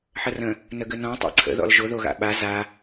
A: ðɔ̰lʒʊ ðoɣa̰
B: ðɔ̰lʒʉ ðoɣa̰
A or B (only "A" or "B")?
A